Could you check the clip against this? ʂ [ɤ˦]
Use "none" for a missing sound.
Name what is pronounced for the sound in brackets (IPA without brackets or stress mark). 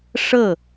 ɤ˥˩